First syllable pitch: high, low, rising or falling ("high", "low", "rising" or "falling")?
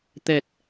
low